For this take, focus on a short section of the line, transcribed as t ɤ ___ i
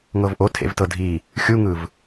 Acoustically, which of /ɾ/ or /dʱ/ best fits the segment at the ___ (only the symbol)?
dʱ